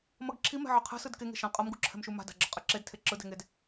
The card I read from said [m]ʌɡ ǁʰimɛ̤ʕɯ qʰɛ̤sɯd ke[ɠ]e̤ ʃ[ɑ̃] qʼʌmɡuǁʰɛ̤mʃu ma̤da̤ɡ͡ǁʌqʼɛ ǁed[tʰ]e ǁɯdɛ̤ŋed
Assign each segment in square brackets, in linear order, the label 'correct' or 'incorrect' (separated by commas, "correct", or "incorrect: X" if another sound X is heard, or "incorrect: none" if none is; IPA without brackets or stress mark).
correct, incorrect: ŋ, incorrect: ã, correct